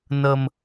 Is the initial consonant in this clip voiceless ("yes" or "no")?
no